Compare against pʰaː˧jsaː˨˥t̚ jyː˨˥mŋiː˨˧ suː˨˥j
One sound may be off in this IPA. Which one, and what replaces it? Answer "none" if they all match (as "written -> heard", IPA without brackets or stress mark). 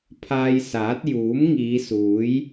yː˨˥ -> uː˨˥